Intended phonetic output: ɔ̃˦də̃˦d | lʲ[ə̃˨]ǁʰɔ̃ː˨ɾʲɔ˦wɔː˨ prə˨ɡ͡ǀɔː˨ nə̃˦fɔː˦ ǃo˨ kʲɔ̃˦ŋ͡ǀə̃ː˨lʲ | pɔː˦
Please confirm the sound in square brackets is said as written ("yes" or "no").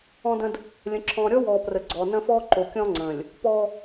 yes